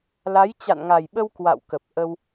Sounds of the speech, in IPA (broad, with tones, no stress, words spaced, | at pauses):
la˨˦jt͡ɕa̰˧˨nŋa˨˩jɓə˧w kwa̰˧˨wkə˨˩p̚ ʔə˧w